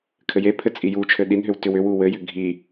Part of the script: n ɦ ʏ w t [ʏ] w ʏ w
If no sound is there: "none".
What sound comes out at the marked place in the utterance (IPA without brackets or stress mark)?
ʏ